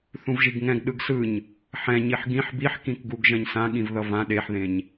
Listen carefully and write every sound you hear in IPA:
θ ũ v ʒ i ɡ ŋ ɛ̃ ɡ ɗ ɯ ɡ s ɯ ɲ | ħ ɛ̃ ɲ i ħ ɡ ĩ ħ b i ħ k ĩ k ɡ u ɡ ʒ ɛ̃ ɲ s ã ɠ ĩ v ð ʌ v ã ɗ e ħ ð ẽ ɲ

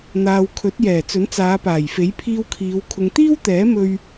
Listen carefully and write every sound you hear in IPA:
n̪ aː˨ w kʰ ɵ˨˥ t̚ j ɛː˨˩ t͡s ɵ˨˥ n t͡s aː˨˧ p aː˨˩ j f e˨˥ j pʰ iː˧ w kʰ iː˨˧ w kʰ ʊ˨ ŋ t̪ iː˥ w t̪ ɛː˨˥ m ɵ˧ ɥ

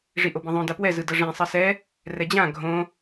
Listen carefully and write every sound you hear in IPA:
ʐ i ʔ o b ĩ ðˤ õ d a p w ɛ z ɯ d ʌ ʐ ẽ sˤ ʌ s ɛ | r ɛ d͡ʑ ã ɡʱ õ

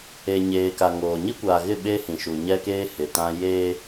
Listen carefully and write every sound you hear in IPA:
e˨ ɲ eː˨ k a˨ ŋ oː˨ ɲ i˦ kʷ aː˨ ɣ ɪ˦˨ ɓ eː˦ h ĩ˨ ʃ u˨ ɲ ɛ˦ k eː˦ h ɪ˨ t ã˦ j eː˦

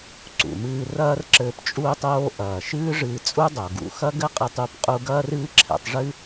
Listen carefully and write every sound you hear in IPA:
ǀ ṵ˩ m ɨː˧ r ɐː˥ r ǁ ɘː˧ p t͡ʃʼ uː˧ tˤ oː˧ ʔ ɐː˩ ʃ ɨː˥ ʐ ɨː˧ t͡sʼ u˥ dˤ o˩ ɡ ṵ˧ x ɐ˥ ɡ ɘ˥ qʼ ɨ˧ tˤ u˥ p qʼ u˥ ɡ ɐː˥ r ɨː˥ ǁʰ ɛ̰˧ tˤ ʐ ɨ˥

